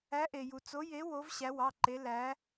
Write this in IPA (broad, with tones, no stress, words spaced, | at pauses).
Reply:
æ˨˦ʔe˩ju˩ t͡so˨˦je˨˦ wo˨˦v ɕæ˨˦wɑ˩˧˩ǃe˨˦ læ˨˦